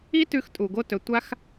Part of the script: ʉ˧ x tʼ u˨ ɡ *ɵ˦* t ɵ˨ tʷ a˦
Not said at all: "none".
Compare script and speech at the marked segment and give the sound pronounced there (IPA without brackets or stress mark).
o˦